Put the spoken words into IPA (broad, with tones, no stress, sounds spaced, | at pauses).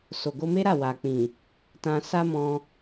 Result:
s o˨ ɡ o˧ m e˦ ɾ a˦˨ w a˨ k͡p ĩ˨ | t ã˧ s a˦ m ɔ̃˧